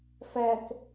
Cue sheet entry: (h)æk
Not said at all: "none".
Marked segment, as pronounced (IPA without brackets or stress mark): f